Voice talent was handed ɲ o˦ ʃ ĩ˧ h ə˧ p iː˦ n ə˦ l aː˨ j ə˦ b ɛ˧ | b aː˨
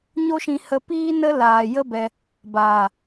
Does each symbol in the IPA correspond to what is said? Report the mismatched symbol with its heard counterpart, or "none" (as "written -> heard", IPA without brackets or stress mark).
none